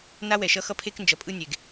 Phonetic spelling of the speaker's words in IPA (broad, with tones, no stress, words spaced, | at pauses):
na˦wɛ˨ʃʌ˦xʌ˦ pʰe˦knd͡ʒʌ˨pʼɯ˦nʲe˨ɡ